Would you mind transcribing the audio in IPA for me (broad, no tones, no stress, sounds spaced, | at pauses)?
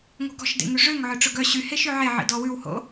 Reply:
ŋ o̤ ɡ ɔ̤ ʃ d ḛ ŋ ʉ ʐ ø ŋ ʕ œ ʈ͡ʂ ɵ ɡ œ ɕ y h e ʃ ø ʕ e ʕ ḭ d ɔ w ʉ w h o̰